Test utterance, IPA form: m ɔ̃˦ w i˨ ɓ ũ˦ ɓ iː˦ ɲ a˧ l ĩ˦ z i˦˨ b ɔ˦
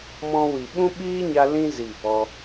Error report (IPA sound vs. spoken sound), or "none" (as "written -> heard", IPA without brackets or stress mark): none